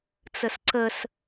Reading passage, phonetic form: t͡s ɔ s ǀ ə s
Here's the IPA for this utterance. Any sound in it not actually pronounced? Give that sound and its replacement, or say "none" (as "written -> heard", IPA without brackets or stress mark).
ɔ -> ə